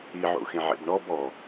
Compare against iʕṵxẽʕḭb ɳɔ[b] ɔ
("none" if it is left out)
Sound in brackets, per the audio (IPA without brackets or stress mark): b